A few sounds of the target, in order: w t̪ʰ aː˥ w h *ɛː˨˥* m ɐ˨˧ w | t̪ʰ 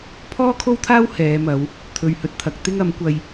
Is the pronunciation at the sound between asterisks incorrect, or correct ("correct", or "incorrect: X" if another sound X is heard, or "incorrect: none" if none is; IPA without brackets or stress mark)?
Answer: incorrect: ɛː˨˧